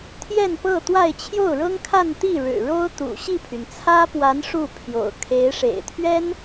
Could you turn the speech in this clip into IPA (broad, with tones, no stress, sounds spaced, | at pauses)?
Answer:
t̪ʰ j ɛ˥˧ n p ɤ˥˧ t̪ w a˥˧ ɪ̯ t͡ɕʰ j o˥˩ ʊ̯ ɻ ɤ˥ ŋ kʰ a˥˧ n t̪ i˥˩ ɻ ɻ̩˨˩ ɻ o˥ ʊ̯ t̪ ṵ˨˩ ɕ i˥˩ pʰ y˩ n t͡sʰ ä˥ p w a˧˥ n ʂ u˥˩ pʰ j o̰˨˩ ʊ̯ kʰ e˧˥ ɪ̯ ʂ ḛ˨˩ ɪ̯ t̪ʰ ɥ ɛ˥ n